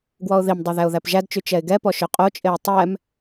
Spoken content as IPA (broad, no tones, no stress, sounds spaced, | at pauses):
ɡ w ɔ ʊ̯ ð i m dˤ ɛ ð æ ʊ̯ ð æ p ʒ æ d t͡ʃ y t͡ʃ ɛ ɪ̯ ɡ ɛ p ɔ ʃ œ qʼ o t͡ʃʼ e ə̯ tˤ ɛ m